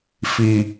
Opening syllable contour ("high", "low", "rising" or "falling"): low